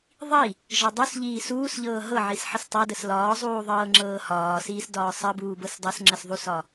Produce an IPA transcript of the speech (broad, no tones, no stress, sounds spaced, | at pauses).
ðˤ i | ʒ ɒ dˤ u s ʎ iː s uː s ʎ ɤː ɦ ɤ ʕ i s ħ ə s tˤ ɤ d ə s l ɒː zˤ uː ðˤ ɤː ŋ͡ǁ ɤː h ɒː s iː s d ɒː sˤ ə b uː b ɤ s dˤ ɤ s ŋ͡ǁ ə s ðˤ u s ɒ